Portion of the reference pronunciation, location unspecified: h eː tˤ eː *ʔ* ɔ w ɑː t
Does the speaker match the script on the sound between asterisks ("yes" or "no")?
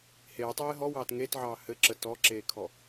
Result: no